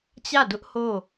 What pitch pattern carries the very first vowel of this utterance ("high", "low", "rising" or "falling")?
falling